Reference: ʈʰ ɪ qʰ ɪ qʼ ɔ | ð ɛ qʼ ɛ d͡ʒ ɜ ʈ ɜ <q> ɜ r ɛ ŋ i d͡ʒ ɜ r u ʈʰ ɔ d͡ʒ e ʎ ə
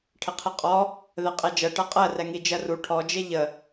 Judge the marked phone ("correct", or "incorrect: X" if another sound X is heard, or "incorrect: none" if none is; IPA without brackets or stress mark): incorrect: qʼ